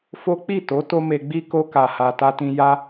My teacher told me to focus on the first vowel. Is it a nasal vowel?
no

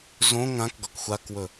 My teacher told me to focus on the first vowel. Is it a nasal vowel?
yes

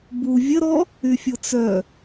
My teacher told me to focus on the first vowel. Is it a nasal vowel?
no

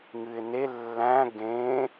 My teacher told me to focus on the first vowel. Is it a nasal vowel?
no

